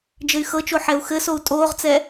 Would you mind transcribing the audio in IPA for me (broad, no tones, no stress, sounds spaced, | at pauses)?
d͡ʒ ɘ y̯ x ɤ t͡ʃ o ħ ɛ u̯ x ɘ s o u̯ tʼ oː ʁ t͡s ɛ